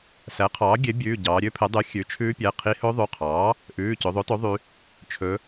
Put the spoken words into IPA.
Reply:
s æ˩˥ qʰ ɑː˩˥ ɡʲ e˩˥ bʲ ʉː˩˧˩ ɟ ɑː˩˧ ɾʲ ø˦˥ pʰ e˩˥ dˤ y˩˥ xʲ ʉ˩˥ t͡ʃʰ ʉː˦˥ pʲ æ˩˧˩ qʰ i˦˥ h ɵ˦˥ ðˤ ʉ˩˧˩ qʰ ɑː˩˥ | ʔ ʉː˩˧˩ c ɵ˩˧ ðˤ o˩˥ t o˩˥ ðˤ y˩˧ | t͡ʃʰ ɵ˩˧

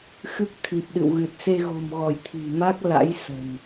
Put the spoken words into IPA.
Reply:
x ɨ˦˥ k̚ t̪ʰ i˨˩ p̚ ɗ ɨ̰˧˨ w ɣ ɨ˨˩ t̚ s e˧ ɣ o̤˨˩ m ɣ ɔ˧˩ j t̪ʰ i̤˨˩ m a˦˥ k̚ l a̰˧˥ j s ə̤˨˩ n

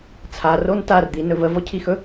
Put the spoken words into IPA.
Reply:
t͡sʰ a r o n t a r d̪ i n ɵ v ə v ɔ cʰ i x ɵ

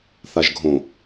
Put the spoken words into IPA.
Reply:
θ a ʒ ɡʱ õ

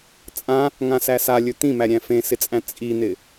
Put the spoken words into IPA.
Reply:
t͡sʼ ã | ŋ ã s æ s a lʲ ɵ t̪ ĩ m æ ɾʲ æ̃ f ẽ s ɪ t͡sʼ æ̃ t͡sʼ i n̪ ɪ

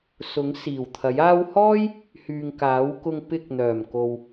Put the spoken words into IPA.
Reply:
s ʊ˨˥ ŋ s iː˨˩ w t̪ʰ ɐ˨˥ j aː˧ w h ɔː˥ j | h yː˨ ŋ k aː˨˥ w k ʊ˧ ŋ p ɪ˧ k̚ n̪ œː˨˩ m k o˨ w

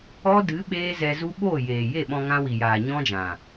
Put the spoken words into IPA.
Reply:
ɔ˦ d ɨ˨˦ ɓ eː˦ z ɛ˧ z u˦ ɓ oː˦˨ j eː˨ j e˦˨ ɓ ɔ̃˧ ŋ ã˧ w i˨ j aː˨ ɲ ɔ̃˦ d͡ʒ ã˨

